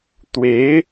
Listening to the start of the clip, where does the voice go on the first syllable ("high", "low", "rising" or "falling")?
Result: rising